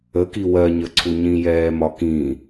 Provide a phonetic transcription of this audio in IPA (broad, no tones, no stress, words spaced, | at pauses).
əki wɜɲəǀʰu ɲĩjɛːmɒkĩ